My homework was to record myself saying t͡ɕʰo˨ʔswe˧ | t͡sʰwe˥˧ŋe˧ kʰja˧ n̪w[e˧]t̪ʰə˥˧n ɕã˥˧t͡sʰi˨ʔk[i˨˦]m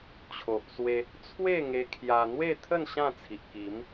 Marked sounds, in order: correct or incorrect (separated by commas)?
incorrect, correct